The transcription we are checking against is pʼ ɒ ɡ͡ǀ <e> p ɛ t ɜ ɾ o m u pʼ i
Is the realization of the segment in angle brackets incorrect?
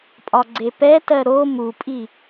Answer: no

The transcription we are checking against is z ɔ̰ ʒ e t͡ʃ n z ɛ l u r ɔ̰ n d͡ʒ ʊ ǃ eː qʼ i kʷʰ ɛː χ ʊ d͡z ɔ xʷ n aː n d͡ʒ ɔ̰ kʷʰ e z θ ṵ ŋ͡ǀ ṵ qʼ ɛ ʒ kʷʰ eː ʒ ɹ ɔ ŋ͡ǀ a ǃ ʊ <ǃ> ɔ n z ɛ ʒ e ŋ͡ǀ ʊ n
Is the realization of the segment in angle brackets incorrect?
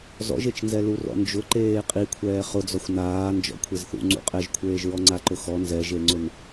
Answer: yes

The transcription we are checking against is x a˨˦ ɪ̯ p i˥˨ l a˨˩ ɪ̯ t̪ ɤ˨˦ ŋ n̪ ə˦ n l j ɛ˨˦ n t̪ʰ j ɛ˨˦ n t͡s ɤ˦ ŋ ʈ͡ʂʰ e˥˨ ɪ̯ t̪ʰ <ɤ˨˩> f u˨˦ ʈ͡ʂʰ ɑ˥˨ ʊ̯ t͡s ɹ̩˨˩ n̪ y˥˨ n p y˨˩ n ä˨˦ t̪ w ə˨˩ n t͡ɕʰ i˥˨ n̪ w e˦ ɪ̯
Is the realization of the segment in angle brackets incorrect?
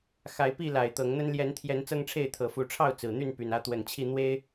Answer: no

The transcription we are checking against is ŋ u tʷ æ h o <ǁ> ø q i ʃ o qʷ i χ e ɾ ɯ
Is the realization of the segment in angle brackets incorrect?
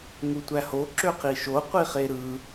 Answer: no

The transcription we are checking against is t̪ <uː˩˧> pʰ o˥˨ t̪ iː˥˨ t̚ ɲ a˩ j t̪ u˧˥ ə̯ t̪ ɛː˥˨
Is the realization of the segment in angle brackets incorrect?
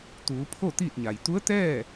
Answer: no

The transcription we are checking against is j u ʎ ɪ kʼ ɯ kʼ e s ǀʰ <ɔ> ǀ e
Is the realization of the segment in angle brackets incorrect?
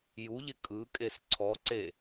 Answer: no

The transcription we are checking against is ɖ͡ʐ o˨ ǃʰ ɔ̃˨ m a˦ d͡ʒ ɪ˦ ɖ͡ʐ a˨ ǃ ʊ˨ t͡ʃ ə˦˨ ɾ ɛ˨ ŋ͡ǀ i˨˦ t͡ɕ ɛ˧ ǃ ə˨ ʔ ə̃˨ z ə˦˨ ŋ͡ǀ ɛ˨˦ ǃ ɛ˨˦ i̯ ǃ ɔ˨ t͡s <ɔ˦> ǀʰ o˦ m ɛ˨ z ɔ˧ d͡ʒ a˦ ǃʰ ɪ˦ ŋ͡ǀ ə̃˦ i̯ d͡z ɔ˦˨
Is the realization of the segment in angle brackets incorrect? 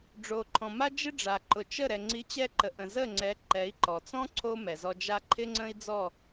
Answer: yes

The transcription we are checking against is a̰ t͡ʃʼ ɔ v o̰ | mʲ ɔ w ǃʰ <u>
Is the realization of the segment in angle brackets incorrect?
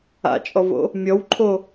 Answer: yes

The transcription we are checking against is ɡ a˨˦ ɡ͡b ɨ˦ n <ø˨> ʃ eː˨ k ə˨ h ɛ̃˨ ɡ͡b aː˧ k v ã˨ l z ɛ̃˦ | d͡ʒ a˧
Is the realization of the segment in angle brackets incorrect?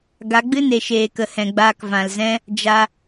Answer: yes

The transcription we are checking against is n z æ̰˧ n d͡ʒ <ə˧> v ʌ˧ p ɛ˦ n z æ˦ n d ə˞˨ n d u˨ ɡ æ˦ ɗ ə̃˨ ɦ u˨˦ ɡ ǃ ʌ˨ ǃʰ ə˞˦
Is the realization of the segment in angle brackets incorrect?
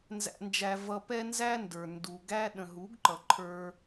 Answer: yes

